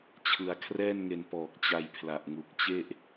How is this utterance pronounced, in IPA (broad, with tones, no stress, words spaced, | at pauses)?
t͡ɕʰɯ˧a̯ kʰrɛː˥˩nŋe˧n pɔː˨˩k̚t͡ɕa˧j pʰla˨˩ʔŋu˨˩k̚ t͡ɕe˥˩ʔ